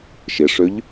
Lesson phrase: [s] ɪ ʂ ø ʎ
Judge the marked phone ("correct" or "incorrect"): incorrect